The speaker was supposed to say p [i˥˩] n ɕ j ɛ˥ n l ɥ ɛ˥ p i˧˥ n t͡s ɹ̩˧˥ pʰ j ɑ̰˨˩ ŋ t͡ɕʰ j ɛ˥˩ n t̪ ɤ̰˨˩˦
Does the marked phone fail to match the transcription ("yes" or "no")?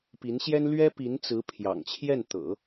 yes